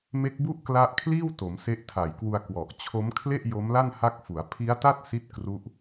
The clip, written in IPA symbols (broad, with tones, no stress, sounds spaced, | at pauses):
m e˦˥ k̚ b u˥˩ ʔ k l a˦˥ ʔ kʰ l iː˥˩ w t o˩˦ m s e˦˥ ʔ tʰ a˨˩ j k w u˧ a̯ k w ɔ˨˩ ʔ t͡ɕʰ o˦˥ m kʰ l e˥˩ ʔ j o˦˥ m l a˥˩ n h a˦˥ k̚ f u˩˦ a̯ pʰ i˦˥ a̯ t a˥˩ t̚ s i˥˩ t̚ k r u˦˥ ʔ